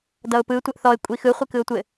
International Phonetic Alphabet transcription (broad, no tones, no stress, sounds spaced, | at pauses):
d ʌ ʊ̯ p ɯ tʷ ɛ ʔ θ ɔ ɪ̯ kʷʼ i x ɯ χʷ i k ɯ ʊ̯ tʷ ɘ